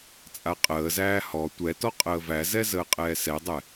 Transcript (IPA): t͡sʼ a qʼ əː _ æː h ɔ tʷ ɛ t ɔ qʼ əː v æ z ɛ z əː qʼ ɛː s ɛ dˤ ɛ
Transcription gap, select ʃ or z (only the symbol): z